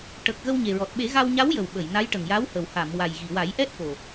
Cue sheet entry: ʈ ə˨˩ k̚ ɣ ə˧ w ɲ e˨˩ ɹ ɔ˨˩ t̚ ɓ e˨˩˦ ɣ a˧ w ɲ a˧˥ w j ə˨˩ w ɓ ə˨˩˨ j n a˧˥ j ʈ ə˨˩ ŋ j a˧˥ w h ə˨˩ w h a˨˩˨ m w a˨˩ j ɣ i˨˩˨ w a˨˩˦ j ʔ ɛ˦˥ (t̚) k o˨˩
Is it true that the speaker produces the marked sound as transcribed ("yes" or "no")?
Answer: yes